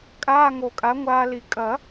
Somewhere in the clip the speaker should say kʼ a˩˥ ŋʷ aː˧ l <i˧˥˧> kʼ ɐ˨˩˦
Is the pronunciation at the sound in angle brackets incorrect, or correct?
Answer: incorrect